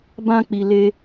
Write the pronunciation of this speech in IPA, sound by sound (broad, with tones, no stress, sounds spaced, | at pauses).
b ã˧ k͡p i˨ l e˧